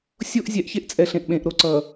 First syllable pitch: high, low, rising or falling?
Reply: high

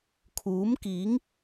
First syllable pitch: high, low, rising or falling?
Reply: rising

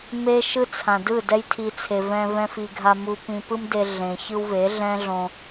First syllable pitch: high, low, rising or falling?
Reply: high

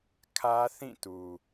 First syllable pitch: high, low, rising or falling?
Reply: high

